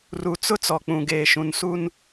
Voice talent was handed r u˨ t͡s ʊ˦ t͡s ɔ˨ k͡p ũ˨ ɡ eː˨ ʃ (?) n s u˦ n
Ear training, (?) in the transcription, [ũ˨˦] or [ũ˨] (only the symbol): ũ˨